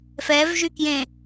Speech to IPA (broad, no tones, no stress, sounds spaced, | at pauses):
f ɛ v ʒ y k j ẽ